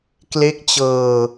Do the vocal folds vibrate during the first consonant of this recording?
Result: no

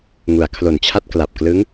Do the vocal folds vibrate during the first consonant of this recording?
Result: yes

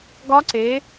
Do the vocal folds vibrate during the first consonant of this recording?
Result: yes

